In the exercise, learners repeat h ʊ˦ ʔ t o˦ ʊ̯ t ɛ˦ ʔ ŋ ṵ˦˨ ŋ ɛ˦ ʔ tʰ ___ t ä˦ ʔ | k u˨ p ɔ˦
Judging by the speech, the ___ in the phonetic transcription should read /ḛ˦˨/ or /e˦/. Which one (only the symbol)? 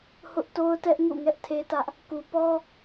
e˦